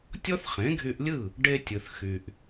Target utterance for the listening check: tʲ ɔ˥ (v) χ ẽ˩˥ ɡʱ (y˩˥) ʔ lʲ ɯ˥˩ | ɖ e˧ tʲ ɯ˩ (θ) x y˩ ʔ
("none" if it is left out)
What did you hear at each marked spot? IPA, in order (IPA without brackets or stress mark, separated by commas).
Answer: θ, y˧, θ